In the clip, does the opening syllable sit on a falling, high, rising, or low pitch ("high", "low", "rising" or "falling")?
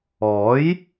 rising